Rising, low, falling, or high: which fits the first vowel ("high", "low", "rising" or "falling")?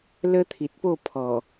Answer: high